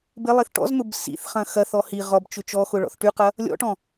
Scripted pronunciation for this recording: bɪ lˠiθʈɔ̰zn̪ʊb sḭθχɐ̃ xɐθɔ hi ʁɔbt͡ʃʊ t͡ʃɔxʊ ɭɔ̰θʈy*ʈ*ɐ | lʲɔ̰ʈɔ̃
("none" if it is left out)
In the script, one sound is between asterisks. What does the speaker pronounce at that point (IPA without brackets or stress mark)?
q